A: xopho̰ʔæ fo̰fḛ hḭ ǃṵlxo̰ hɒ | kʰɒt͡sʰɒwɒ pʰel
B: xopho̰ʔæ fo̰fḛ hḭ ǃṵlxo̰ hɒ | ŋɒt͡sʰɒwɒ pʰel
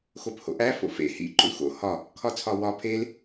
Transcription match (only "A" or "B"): A